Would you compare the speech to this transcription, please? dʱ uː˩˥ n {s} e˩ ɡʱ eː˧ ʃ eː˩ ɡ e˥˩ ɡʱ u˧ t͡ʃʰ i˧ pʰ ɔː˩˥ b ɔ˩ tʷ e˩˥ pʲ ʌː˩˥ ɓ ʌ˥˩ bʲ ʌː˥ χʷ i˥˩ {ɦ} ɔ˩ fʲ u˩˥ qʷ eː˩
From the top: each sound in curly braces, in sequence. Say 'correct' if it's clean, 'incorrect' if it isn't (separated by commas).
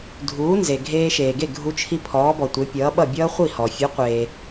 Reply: incorrect, incorrect